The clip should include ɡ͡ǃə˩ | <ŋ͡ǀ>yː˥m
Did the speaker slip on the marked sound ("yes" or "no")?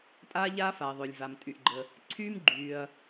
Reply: yes